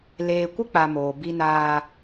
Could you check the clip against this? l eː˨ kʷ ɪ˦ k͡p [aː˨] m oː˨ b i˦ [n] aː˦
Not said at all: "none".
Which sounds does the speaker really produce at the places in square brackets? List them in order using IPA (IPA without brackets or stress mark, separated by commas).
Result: a˨, n